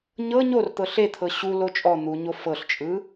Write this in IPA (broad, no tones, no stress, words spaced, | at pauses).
ɲɤ ɲort̪ɤ ɬet̪ʰɤ ɕulo t͡ʃʼɔ n̪uɲo fɤɬt͡ʃʼɯ